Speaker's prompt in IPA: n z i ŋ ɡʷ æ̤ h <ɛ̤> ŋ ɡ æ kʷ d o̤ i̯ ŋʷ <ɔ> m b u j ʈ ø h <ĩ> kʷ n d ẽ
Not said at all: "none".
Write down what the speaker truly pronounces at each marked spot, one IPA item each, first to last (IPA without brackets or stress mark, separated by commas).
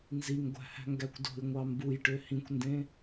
æ̤, ɑ, ĩ